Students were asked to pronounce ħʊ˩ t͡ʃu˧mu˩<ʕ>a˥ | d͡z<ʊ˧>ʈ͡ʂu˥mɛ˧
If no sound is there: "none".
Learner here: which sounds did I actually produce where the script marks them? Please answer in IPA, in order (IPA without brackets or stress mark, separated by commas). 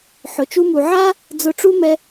ʕ, ʊ˧